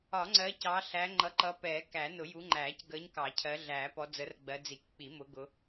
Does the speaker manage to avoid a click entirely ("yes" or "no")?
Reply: no